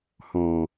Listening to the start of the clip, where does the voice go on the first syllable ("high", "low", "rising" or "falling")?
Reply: low